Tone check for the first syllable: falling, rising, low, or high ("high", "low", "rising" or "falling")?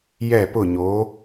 falling